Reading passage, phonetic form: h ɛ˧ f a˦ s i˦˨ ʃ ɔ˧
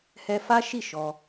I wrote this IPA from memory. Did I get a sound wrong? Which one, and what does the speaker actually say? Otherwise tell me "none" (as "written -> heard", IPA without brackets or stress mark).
s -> ʃ